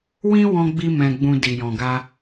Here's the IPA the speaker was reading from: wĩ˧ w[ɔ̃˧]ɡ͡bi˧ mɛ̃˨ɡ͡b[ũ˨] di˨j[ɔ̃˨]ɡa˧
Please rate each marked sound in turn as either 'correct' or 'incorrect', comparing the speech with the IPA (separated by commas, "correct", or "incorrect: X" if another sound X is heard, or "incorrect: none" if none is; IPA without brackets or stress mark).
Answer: correct, correct, correct